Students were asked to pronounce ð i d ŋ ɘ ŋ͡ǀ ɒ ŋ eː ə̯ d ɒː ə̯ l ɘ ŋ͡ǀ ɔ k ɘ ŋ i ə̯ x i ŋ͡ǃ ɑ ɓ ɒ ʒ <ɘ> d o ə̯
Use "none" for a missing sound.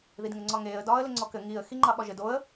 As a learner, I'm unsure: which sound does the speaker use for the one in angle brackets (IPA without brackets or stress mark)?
ɘ